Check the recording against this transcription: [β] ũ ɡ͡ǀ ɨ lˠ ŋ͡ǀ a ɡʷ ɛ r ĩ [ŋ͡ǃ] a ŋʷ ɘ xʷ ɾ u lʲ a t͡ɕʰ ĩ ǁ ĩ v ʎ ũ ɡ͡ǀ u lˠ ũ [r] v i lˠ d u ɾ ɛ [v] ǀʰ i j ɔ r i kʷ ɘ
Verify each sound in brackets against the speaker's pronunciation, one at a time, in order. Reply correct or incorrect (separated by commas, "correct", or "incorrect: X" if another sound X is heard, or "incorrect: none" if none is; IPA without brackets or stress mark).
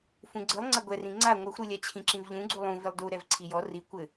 incorrect: f, incorrect: ŋ͡ǀ, incorrect: none, correct